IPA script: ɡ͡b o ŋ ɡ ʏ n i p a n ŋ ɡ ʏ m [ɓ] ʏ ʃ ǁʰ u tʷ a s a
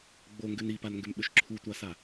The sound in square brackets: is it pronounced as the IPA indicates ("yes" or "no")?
yes